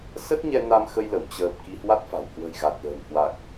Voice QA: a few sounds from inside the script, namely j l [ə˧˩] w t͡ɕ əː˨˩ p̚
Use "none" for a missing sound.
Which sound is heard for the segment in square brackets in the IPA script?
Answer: ə˧˩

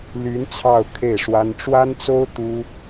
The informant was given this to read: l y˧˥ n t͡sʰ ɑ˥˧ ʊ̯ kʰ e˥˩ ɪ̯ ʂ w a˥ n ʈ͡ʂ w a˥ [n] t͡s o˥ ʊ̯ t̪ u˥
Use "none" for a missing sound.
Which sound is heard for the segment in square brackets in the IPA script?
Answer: n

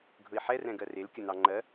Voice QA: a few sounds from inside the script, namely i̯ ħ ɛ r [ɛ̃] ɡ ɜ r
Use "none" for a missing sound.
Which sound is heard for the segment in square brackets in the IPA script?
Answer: ɛ̃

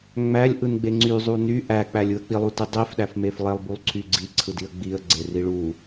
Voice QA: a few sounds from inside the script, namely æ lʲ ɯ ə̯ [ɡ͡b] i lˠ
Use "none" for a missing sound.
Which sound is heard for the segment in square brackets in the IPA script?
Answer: k͡p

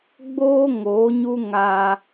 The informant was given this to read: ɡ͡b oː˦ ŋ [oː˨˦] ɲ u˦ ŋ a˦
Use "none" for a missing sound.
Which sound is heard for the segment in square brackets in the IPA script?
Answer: oː˨˦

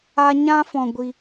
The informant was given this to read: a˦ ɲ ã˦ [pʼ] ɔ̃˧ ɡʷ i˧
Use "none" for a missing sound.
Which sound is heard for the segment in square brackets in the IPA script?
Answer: f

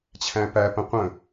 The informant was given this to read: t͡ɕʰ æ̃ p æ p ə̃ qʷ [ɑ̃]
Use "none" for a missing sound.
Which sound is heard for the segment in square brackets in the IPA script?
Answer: ə̃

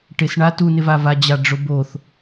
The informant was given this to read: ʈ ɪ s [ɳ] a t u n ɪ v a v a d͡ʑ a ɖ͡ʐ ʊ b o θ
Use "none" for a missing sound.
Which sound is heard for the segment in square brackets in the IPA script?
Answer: ɳ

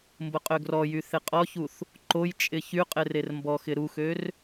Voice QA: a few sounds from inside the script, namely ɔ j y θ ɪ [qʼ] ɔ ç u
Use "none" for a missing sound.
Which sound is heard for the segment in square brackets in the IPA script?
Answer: qʼ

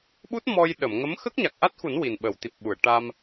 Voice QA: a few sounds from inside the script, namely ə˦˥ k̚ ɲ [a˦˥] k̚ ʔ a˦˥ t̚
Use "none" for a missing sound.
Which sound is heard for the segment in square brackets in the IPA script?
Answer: a˨˩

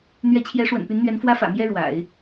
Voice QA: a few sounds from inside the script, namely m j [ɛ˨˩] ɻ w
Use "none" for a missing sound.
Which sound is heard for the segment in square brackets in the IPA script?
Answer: ɛ˥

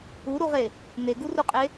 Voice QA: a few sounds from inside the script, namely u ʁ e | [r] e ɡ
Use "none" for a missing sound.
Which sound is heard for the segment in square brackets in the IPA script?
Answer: n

